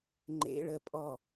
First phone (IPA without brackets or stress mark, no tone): ŋ͡ǃ